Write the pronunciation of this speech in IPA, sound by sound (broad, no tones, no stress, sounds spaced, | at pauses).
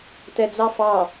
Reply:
t ɛ d͡z ɑ f ɑ